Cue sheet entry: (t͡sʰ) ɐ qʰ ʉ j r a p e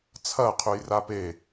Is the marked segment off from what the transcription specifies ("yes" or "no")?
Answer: no